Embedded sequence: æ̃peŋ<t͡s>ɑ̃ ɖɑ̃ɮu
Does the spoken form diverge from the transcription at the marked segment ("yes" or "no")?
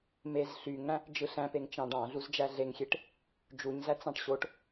yes